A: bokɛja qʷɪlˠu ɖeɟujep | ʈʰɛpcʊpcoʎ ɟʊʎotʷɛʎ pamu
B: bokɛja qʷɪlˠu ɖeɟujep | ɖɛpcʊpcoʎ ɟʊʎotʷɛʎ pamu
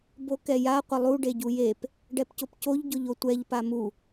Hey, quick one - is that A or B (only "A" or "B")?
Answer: B